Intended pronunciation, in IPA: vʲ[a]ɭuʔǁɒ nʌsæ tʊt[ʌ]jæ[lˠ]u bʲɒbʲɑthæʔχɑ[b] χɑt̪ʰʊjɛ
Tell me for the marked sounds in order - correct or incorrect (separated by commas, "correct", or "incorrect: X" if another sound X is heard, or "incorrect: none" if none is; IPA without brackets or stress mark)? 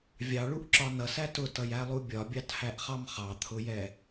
incorrect: ɑ, correct, correct, incorrect: m